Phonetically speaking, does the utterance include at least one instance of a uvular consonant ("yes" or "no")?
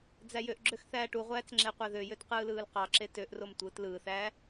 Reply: yes